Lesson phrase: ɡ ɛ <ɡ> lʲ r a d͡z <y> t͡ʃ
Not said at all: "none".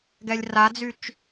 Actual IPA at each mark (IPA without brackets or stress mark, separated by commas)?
none, y